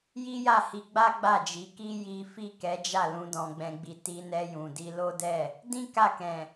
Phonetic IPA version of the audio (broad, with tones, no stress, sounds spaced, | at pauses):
j i˦ j a˦˨ h i˧ ɡ͡b a˦ ɡ͡b a˦˨ d͡ʒ i˨˦ k i˦ j i˦ f i˦˨ k ɛ˨˦ d͡ʒ a˦˨ l ũ˨˦ d ɔ̃˧ ɡ͡b ɛ̃˧ ɡ͡b i˧ t i˧ n ɛ˧ j ũ˨ d i˧ l o˦ d ɛ˦˨ | d ĩ˦ k a˦˨ k ɛ̃˨